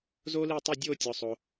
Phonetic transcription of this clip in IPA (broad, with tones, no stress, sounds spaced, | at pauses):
z oː˥ l iː˦˨ tˤ i˦˨ dʲ oː˦˨ tʲ ɔ˩ sˤ o˩